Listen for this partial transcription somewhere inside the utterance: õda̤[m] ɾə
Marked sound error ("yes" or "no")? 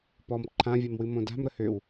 no